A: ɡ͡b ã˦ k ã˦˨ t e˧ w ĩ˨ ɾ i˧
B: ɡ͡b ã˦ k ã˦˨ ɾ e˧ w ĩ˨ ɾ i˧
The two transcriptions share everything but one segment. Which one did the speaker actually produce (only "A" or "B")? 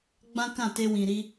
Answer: A